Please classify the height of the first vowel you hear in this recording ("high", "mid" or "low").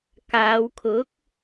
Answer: low